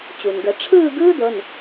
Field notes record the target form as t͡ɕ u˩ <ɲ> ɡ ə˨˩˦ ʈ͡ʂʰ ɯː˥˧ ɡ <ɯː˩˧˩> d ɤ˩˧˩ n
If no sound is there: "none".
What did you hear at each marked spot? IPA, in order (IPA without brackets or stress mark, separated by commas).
n, ɯː˥